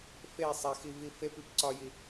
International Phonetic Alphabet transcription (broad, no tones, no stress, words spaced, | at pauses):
fe sˤæxivi fepip ǀɒji